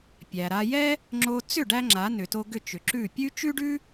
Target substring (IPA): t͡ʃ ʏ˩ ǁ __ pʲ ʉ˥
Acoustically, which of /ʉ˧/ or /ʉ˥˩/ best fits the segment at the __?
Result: ʉ˥˩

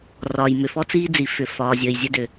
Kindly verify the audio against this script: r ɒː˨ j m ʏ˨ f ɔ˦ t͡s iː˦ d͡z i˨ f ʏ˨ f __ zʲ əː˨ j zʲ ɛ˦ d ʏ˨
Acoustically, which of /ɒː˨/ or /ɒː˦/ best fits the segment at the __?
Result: ɒː˨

